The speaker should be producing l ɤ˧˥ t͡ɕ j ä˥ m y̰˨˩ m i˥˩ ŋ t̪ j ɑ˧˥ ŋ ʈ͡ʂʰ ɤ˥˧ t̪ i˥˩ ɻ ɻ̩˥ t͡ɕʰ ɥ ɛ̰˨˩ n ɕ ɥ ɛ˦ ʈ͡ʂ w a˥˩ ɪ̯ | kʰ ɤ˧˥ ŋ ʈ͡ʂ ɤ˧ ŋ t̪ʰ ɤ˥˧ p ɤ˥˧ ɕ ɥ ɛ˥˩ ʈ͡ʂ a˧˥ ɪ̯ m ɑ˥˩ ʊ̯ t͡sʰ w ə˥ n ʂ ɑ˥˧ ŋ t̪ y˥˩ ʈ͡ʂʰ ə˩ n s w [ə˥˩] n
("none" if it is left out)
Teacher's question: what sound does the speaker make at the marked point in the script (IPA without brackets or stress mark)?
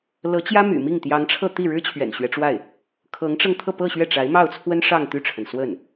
ə˥˩